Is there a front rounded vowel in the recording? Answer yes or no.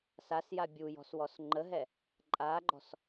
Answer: no